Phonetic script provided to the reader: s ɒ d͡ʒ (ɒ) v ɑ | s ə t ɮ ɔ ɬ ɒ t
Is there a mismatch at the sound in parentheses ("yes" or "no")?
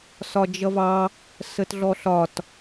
yes